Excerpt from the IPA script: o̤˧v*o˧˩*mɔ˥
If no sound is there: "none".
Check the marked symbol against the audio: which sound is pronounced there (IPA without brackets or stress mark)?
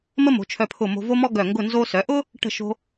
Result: o˥